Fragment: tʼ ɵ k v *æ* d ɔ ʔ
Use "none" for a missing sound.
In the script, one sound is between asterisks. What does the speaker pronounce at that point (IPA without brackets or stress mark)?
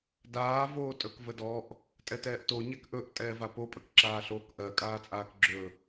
ə